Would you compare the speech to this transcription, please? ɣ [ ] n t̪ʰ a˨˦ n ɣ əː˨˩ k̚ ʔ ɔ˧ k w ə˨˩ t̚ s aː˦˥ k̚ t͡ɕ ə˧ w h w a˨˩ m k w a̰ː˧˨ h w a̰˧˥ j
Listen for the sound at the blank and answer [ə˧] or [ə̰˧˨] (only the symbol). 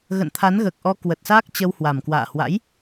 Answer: ə̰˧˨